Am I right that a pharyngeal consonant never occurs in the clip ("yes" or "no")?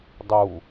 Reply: yes